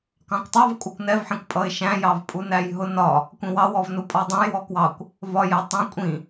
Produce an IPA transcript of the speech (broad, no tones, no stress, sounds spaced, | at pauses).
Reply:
k ɑ̃ kʷ tˤ ɑ v kʷʼ ʌ kʷ n ɛ v ħ ĩ kʷ pʼ ʌ ɪ̯ ʃ æ̃ j ɑ v pʼ u n æ j ɦ ʊ n ɒ | kʷ ĩ w ɑ w ɔ v n u pʼ ɔ dˤ ɛ̃ j w ɔ k w ɑ kʷ | v ɒ j ɛ tˤ ĩ kʷʼ ĩ